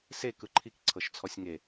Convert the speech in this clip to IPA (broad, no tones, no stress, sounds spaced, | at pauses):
s e k ɯ ǃʰ i k ǀʰ ɤ ʃ t͡sʰ ɔ sʲ ŋ e